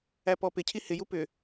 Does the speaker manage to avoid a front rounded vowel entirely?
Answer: no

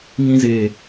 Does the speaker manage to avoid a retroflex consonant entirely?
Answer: yes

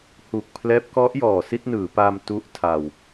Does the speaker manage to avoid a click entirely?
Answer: yes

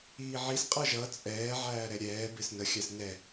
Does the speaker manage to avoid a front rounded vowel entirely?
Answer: yes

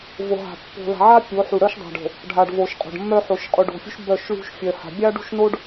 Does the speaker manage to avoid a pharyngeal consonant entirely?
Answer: no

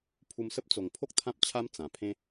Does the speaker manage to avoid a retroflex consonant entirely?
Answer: yes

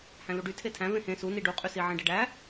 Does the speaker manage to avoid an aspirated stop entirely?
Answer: no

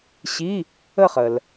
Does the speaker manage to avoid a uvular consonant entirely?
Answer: no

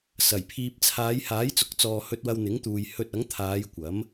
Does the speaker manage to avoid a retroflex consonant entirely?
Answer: yes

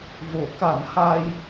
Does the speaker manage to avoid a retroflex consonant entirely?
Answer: yes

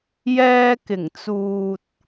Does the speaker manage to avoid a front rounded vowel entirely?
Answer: yes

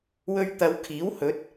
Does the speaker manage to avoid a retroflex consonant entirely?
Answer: yes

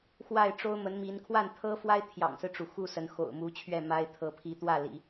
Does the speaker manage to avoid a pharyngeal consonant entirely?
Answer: yes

